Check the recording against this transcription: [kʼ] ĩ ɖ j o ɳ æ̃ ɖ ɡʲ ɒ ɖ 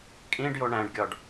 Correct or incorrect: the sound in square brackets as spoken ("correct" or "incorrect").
correct